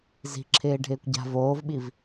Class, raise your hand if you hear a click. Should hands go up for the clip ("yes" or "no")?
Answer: yes